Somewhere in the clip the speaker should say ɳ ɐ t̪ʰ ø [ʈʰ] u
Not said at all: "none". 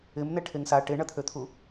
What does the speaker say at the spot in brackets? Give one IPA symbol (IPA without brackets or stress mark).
t̪ʰ